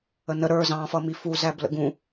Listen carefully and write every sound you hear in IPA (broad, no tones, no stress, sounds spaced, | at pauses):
ə n ə ɾ ə˞ z ɑ̃ f ʌ m i f u z æ b l ə̰ ɡ ũ